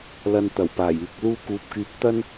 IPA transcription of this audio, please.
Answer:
l ɐ˧ n t̪ ɐ˨˩ w p aː˨˩ j yː˨ k̚ l uː˧ k uː˨ p̚ k yː˨˥ p̚ t̪ ɐ˥ n

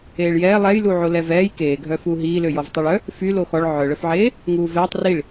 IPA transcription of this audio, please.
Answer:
eː ɭ j ɛː lˠ ɛ j l u ʕ o l ɛ v ɛː j k eː ɡʱ œ f uː ɦ iː l ø j ɔ v tˤ ø ɭ œ | f y l o x ɔ ɭ ʕ œ ɭ œ f ʕ eː | ŋ uː v ɛː tˤ r i ɭ

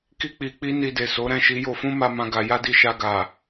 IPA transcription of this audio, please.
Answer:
k i˦ k͡p i˧ k͡p i˦ n i˧ d e˨ s o˨˦ ɾ ɛ̃˦˨ ʃ i˧ j o˧ f ũ˦ m a˦ m ã˦ ɡ a˧ j a˦ d i˧ ʃ a˧ ɡ a˨

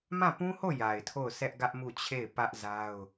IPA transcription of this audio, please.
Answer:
m ã˦˨ p ũ˦ h o˦˨ j a˨ ɪ̯ tʰ o˦˨ ʊ̯ sʰ ɛ˦ ʔ ɡ ä˦ ʔ m u˦˨ t͡ɕʰ e˦˨ ɪ̯ p ä˦ ʔ z a˦ ʊ̯

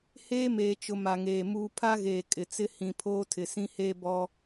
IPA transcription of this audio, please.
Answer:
h eː˦ m eː˨ t͡ʃ ʊ˨ m a˨ ŋ eː˨ m uː˦ pʰ a˦ ɣ eː˨ kʼ ɪ˨ t͡s ɪ˦ h ĩ˨ pʰ oː˦ tʰ ɪ˨ s ĩ˦ h eː˦ b ɔ˦

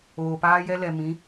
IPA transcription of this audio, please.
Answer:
oː˨ p aː˦ j ɛ˦ l ɛ˨ m ĩ˨˦

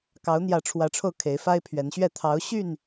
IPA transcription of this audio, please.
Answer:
k ɑ˨˦ ʊ̯ n̪ j ä˨˦ ʈ͡ʂʰ w ä˨˦ ʈ͡ʂʰ o˧ ʊ̯ kʰ e˨˦ ɪ̯ f a˦ ɪ̯ pʰ ɥ ɛ˨˦ n ɕ ɥ ɛ˥˨ t̪ʰ ɑ˨˦ ʊ̯ ɕ y˥˨ n

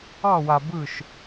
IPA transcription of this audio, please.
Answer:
ɑ˥˧ w a˧ b ɯ˥˧ ʃ

